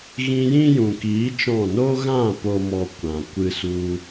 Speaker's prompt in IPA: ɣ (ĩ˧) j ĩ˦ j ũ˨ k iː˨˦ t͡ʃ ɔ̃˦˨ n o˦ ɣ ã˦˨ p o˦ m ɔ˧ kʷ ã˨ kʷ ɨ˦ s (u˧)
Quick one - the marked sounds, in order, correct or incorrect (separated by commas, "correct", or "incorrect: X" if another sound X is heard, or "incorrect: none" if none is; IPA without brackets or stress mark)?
correct, incorrect: u˦